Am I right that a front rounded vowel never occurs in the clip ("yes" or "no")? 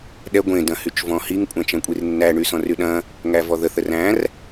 no